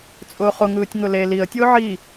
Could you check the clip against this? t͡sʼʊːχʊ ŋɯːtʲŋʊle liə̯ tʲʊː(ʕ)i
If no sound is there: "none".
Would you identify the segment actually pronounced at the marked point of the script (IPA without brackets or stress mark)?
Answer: ʕ